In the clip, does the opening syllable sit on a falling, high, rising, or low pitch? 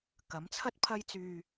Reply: rising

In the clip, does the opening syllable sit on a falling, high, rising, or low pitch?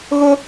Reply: high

